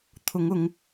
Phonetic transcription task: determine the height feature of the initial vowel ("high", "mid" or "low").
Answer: high